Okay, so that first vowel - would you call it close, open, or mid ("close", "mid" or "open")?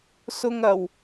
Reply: close